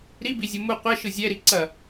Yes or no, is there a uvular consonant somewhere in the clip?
yes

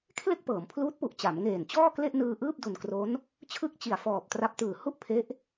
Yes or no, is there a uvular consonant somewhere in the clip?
no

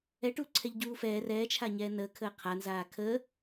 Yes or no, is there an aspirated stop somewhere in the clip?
yes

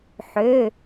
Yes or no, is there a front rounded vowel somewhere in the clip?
yes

